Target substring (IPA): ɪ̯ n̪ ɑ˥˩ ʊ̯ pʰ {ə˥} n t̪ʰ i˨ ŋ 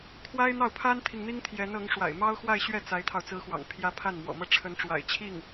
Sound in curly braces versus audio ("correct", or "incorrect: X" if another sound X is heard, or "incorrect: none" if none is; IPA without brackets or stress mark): incorrect: a˥